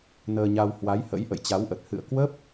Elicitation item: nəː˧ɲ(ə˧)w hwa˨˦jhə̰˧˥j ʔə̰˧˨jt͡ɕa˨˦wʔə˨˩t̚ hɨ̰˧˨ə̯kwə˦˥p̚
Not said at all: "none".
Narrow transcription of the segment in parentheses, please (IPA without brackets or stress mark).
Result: a˧